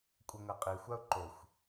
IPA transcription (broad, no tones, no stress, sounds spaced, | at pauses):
kʷʼ ɤ ŋ ɤ qʼ i xʷ a ʊ̯ ǃ o xʷ